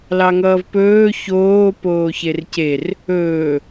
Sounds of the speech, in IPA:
lɑŋʌːvpɵː çoː poːçercer | ɵː

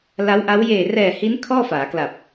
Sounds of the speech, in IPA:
la˦˥wʔa˦˥w jeː˨˩rɛː˨˩hiː˦˥n kʰɔː˥˩faː˩˦kla˨˩p̚

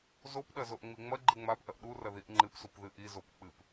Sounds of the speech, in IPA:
zopɗɐ zoʔŋ͡miŋ͡mɐɡ͡ǃɨ ŋ͡mapʔɐʔ ɗurɐ ðiʔŋ͡ǃɨpsup ðɨʔizop k͡pɨp

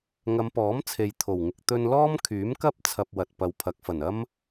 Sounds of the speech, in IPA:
ŋɐ˨˧mpɔː˨˥m t͡sʰe˨jt̪ʰo˨˩wŋɪ˨k̚ t̪ɵ˧nlɔː˥m kʰyː˨˥mkɐ˥p̚ t͡sʰɐ˧p̚wɐ˨t̚ pɐ˨wpʰɐ˨˥k̚fɐ˨˩nɐ˥m

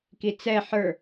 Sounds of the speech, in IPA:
kit͡sɛ ħə˞

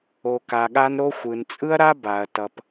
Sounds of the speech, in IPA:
o˧ka˧ɠa˦nɾo˦ xʷɯ˨nt͡sʼɯ˦ɐ̯ɾa˦ ba˨ɐ̯tʌ˨p

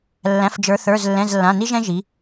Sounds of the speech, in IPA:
lːæ̃˩˧˩fd͡ʒə˞˩˧θə˞˩˧˩zlːɛ̃˩˧˩z lːã˩˧˩ni˦ʒɛ̃˦ ʒi˩˧

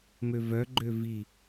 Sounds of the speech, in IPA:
møvœɡ͡ǃø vi

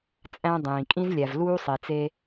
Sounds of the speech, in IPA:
t͡sʼæ̃˧dˤĩː˩ kʼĩ˧zlʲæ˩vluː˧ sˤi˩t͡se˧

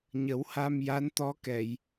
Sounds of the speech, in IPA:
ɲə˨˩˦wha˧mja˧˥nt̪ɔ˧˥ kɛ˨˩˨j

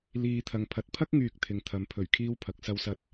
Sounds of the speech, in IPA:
liː˨ t̪ʰɐ˨ŋpʰɐ˨˥t̚ pʰɐ˥k̚ŋyː˨k̚ t̪ʰɪ˨ŋt̪ʰɐ˨˥mpʰɵ˨˩ɥ kʰiː˥wpʰɐ˨˥k̚ sɐ˥wsɐ˥t̚

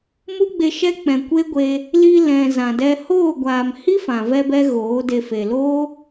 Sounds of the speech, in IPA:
mu˦ɡ͡be˧ʃɛ˦ k͡pɛ̃˨kʷe˦ɡʷe˧ | li˧lɛ̃˨ zã˨dɛ˧ hoː˦˨ɡʷaː˨m hi˦fã˨vɛ˧bɛ˧ ɣoː˨˦de˧ fe˨lo˦

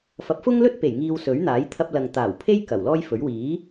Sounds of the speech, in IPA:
fɐ˨˥p̚fʊ˥ŋlɵ˥t̚pe˨˩j ŋiː˧wsɵ˨˥ɥ n̪aː˨˥j t̪ʰɐ˧p̚lɐ˨ŋt̪aː˨˩wpʰe˥j kɐ˨˩wlɔː˥jfɵ˨˥ɥ wiː˨˥

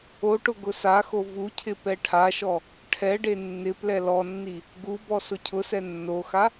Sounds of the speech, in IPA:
oʈʊ ɡʊsaxo vucʰɪ pɛʈʰaʃɔ | ʈʰɛɖe nːɪ plɛlɔnːi | ɡubɔ sʊcʰʊsɛ nːoxa

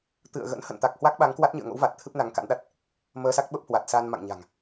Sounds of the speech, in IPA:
t̪ɨ̰˧˨ə̯ɣə̰˧˥n hə̰˧˨nt̪a˨˩k̚hwa˦˥k̚ɓa˨˦ŋ kwa˦˥t̚ɲɨ̰˧˨ə̯ŋo̰˧˥wva˨˩t̚ t̪ʰɨ˦˥p̚na˨˦ŋka̰˧˥nɗa˦˥t̚ | məː˧sa˦˥k̚ɓə˦˥p̚hwa˨˩t̚ sa˧nma̰˧˨ŋɲa̤˨˩ŋ

